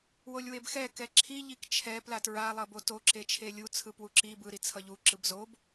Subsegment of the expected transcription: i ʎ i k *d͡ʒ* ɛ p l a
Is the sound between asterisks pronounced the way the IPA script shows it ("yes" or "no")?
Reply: no